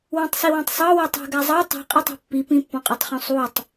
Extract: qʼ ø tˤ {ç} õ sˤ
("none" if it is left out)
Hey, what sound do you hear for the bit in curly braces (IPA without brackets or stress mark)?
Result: χ